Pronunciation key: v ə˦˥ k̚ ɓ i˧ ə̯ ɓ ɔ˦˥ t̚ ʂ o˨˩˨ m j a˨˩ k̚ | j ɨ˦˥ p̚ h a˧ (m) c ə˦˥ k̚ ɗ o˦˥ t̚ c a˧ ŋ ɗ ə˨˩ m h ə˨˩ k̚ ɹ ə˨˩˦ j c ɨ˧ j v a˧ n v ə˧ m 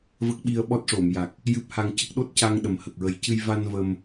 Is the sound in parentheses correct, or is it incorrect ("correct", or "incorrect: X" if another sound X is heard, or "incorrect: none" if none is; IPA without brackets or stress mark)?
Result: incorrect: ŋ